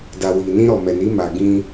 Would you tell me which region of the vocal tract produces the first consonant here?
tongue tip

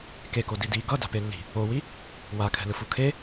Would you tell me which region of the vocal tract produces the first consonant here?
velum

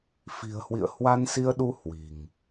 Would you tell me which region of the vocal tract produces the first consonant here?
lips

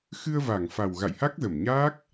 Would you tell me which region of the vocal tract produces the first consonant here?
velum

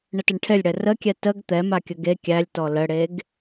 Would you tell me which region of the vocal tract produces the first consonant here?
retroflex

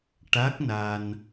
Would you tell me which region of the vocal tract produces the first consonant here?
retroflex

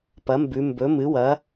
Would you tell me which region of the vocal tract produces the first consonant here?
lips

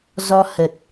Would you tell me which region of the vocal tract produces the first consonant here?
tongue tip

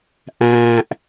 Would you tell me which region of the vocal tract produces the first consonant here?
throat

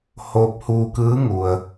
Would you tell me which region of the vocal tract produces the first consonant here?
throat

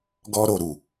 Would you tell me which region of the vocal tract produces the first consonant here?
velum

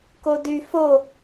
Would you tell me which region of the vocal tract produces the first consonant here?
velum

